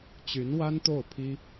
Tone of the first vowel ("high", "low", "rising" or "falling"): rising